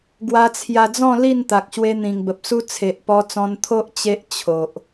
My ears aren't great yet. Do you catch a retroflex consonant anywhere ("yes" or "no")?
no